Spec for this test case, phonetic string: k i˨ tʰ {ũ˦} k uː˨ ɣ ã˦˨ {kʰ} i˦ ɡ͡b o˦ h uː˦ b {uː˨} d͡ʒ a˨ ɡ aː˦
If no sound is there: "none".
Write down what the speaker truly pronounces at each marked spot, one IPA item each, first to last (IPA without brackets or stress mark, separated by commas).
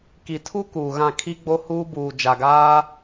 u˦, kʰ, uː˨